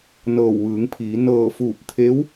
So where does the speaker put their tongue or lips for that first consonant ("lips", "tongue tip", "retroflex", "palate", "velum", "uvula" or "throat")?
tongue tip